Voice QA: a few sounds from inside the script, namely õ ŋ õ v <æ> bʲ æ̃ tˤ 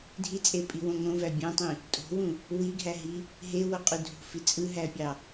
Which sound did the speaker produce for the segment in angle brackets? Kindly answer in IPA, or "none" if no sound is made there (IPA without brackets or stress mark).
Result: æ